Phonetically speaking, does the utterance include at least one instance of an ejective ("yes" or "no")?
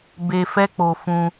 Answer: no